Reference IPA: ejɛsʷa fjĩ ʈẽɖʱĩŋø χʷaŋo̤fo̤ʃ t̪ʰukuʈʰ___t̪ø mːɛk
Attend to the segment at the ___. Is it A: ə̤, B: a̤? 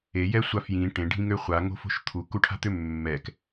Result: B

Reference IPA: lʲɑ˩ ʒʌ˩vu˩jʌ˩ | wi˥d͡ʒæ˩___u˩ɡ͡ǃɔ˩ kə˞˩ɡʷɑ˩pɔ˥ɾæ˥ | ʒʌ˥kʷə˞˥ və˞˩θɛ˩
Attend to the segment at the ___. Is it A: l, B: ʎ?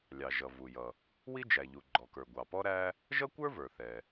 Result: B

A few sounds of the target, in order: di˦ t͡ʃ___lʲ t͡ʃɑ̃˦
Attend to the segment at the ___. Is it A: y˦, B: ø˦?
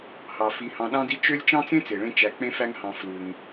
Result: B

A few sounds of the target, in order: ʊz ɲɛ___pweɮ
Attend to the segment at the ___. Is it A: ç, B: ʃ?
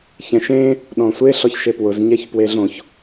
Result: A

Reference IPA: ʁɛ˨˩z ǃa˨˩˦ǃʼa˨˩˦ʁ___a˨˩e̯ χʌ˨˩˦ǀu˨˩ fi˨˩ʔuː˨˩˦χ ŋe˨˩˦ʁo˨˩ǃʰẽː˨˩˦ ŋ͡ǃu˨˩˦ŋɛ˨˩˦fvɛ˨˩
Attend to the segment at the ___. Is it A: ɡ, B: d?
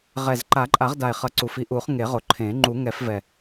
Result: B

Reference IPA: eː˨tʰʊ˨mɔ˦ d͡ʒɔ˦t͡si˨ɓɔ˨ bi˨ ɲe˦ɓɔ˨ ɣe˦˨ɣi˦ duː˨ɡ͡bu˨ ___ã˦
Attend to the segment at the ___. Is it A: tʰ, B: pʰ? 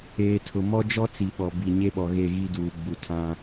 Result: A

